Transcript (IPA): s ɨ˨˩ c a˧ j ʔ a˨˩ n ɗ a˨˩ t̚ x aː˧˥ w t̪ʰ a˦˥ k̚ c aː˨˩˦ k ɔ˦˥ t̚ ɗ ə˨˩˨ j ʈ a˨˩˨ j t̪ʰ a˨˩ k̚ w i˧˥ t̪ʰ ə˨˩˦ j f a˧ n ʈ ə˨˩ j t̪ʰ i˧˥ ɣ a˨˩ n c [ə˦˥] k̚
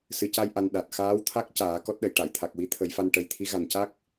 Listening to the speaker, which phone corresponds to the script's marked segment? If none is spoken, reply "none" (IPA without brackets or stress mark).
a˦˥